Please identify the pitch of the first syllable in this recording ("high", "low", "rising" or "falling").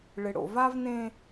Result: low